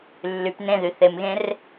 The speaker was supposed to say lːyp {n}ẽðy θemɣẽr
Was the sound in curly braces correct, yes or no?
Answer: yes